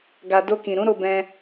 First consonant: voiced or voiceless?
voiced